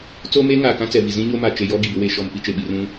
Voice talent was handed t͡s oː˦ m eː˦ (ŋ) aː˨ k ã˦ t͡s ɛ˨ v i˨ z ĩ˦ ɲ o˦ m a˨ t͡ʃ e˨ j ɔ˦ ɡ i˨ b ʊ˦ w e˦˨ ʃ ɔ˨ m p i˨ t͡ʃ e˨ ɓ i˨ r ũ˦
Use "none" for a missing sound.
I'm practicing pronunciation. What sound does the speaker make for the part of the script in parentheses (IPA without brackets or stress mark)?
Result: ŋ